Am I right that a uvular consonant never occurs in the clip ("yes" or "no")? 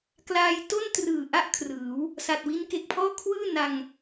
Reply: yes